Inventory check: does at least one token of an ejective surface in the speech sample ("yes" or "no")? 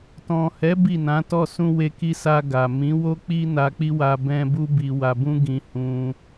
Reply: no